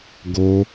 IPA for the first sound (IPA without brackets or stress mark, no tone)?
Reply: ɡ